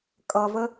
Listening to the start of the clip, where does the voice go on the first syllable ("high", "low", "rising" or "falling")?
low